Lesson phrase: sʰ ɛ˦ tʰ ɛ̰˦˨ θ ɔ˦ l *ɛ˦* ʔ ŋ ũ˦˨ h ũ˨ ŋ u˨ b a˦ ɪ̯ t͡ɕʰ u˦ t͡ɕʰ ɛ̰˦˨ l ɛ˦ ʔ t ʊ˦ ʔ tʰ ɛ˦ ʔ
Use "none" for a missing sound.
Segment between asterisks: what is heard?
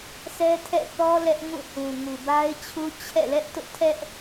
ɛ˦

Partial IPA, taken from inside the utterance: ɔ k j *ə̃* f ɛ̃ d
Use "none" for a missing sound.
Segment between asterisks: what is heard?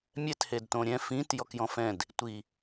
ɔ̃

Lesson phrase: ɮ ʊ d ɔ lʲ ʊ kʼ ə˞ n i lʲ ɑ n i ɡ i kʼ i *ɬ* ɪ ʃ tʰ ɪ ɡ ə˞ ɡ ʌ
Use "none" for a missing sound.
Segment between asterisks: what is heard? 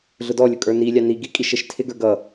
ʃ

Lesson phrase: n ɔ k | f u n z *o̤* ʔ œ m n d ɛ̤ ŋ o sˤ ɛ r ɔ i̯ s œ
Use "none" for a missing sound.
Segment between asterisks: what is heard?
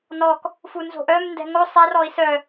o̤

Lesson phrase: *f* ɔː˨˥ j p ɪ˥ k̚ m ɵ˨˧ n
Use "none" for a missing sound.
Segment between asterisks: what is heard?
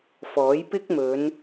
f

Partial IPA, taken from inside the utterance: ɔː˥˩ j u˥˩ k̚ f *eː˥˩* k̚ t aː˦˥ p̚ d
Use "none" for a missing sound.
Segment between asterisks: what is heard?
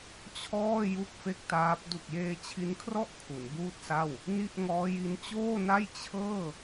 e˥˩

